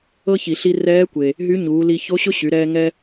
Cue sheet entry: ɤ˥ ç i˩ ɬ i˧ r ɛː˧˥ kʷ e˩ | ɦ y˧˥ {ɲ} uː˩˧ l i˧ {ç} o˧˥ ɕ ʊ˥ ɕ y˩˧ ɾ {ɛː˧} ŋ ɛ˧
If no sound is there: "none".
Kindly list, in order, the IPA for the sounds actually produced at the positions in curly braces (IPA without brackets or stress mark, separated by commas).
ɲ, ç, ɛː˧